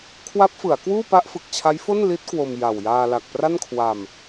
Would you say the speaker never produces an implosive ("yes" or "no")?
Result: yes